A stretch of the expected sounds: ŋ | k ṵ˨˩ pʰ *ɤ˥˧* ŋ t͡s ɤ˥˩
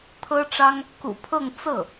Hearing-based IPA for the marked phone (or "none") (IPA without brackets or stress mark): ɤ˥˧